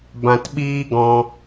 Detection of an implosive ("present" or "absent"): present